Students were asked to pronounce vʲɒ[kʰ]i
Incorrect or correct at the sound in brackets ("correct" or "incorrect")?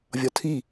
incorrect